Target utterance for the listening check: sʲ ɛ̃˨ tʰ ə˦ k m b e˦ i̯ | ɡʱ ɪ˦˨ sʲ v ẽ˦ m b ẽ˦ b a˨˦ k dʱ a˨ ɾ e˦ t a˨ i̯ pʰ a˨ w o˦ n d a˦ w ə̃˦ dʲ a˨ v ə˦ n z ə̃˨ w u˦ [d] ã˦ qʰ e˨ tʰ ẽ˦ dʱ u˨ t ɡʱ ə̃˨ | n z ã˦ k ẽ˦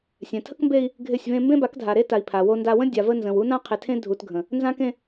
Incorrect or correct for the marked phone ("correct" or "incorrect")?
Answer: incorrect